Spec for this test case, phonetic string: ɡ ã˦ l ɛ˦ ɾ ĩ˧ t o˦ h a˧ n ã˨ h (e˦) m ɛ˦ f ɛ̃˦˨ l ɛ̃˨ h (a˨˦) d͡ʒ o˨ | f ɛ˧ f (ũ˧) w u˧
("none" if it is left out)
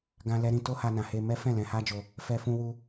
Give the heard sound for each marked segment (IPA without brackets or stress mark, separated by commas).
e˧, a˧, ũ˧